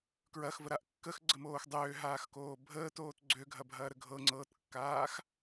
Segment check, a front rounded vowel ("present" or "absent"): present